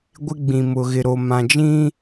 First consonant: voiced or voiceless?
voiced